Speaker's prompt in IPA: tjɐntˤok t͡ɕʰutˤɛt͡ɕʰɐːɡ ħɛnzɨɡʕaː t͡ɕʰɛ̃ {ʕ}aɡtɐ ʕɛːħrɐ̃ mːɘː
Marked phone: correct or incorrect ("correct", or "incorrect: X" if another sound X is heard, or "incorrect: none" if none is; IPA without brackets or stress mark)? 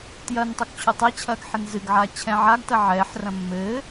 correct